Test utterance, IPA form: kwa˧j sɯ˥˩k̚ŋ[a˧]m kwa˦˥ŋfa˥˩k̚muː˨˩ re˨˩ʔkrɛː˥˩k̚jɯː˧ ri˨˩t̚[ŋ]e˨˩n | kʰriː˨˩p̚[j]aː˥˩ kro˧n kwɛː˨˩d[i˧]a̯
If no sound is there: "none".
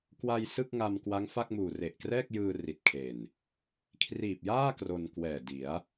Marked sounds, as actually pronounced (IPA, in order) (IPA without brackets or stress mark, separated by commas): a˧, kʰ, j, i˩˦